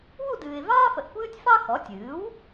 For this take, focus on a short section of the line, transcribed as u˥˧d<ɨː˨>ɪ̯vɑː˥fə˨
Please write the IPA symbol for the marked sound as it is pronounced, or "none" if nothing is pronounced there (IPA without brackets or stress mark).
ɨː˨